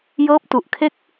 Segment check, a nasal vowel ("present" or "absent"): absent